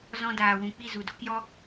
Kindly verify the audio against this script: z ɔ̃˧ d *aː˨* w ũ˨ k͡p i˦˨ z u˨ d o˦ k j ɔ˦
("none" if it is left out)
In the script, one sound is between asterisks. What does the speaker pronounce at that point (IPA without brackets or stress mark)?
aː˨